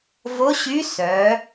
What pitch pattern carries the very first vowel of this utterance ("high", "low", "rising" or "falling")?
rising